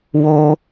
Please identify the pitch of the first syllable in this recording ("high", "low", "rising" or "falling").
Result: high